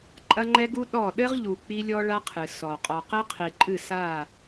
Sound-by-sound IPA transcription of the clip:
ǃʼɐ˦ŋ͡ǃɛ˦ɡu˦ ɗɔ˦˨ ɗɘ˦ʁʎu˨ k͡pi˦lʲɔ˦ɭa˦ qʰɨ˨sɔ˨ qʼɔ˨qɘ˦qʰi˨ǃʼɨ˦˨ sa˦˨

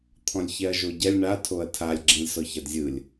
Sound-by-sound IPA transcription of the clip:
t̪ʰɔ̃lʲçɛɐ̯ʒoɟɛlʲ ɳa tʰoɐ̯tʰalʲ ɡ͡ǁĩlʲsɔçadzʲɯlʲ

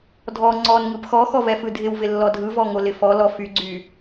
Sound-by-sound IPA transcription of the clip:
dʱɔ ŋ͡ǀɔn ŋɯpxɔxɔ vɛfɯdʱɪwvɪ lːɔdʱɯvɔ ŋolɪfɔlɔ fyɡ͡ǀy

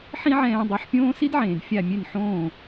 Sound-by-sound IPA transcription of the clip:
ħĩ˥ʕɛ̃ː˧dˤi˩˥ħpʲõː˥ si˥dʕẽː˩d fʲa˥˩mʲe˥˩nħõː˥˩

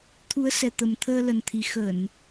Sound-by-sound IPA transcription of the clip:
t̪ʰu˨˦ə̯sɛ˨˩t̪ə˨˩m t̪ʰəː˧lə˨˩nt̪ʰi˨˩ xə˧˩˨n

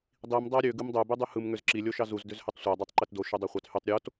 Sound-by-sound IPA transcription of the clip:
dˤim dˤæɾʲø ɡɯmdˤø bydˤyhɯm ŋøzǁi lʲoʃɑzuz døzhøtˤsʷæ dˤøtˤǃetdo ʃydˤɑχʷɑthytˤ ɾʲot

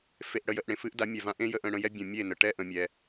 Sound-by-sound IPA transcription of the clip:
fe˧ʔɽə˧jə˧ʔ ɽẽ˨ fɨ˦ʔda˨˦mʲɛ˨vã˧ ʔẽ˦jə˧ʔ ə̃˧ɽə̃˧jɛ˦ bʲə̃˨mʲe˦˨nə˨ ʈɛ˦ʔə̃˨ mʲɛ˨

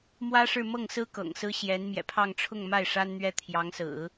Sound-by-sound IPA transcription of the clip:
mwä˥ʂɻ̩˥˧mɤ˥˩ŋsɹ̩˥ kɤ̰˨˩ŋsɹ̩˥ ɕjɛ˧˥n mjɛ̰˨˩pʰɑ˥˧ŋ ʈ͡ʂʰʊ˥˧ŋma˥˩ɪ̯ ʂa˥nn̪ɥɛ˥ t̪ʰjɑ˧˥ŋsɹ̩˨˩˦

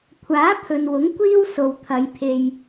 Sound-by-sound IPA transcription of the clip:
kʷʰaː˨˥pʰɵ˨nwʊ˨˥ŋ kʷiː˥w so˨wt̪ʰɐ˨˧jpʰe˧j

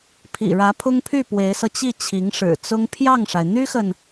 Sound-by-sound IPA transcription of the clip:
pʰḭ˨˩ɻä˧˥pʰʊ˥ŋpʰy˥˩ pwe˧˥ɪ̯sɤ˧ t͡ɕi˥˩t͡ɕʰi˧˥ŋʂɻ̩˨˩ t͡sʊ˥ŋ pʰjɑ˥˩ŋʂa˩ɪ̯ n̪y˥xə˨n

